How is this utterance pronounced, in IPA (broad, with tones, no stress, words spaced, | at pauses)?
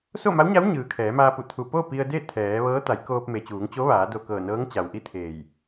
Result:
so˥˨ma˧˥wɲa˧˥w ɲɯː˩kʰɛː˩˧maː˧pu˧˩ t̪ʰu˧˩ po˥˨ pi˧ə̯de˥˨ t̪ʰɛː˩˧ʋɤː˧˥ t̪a˩˧jkoː˧p̚ me˩t͡ɕuː˩˧ŋt͡ɕo˧˥ ʋaː˩˧do˧˩kɤː˧˩nɤː˧˥ŋ t͡ɕa˩wʔi˥˨t̪ʰeː˧˩j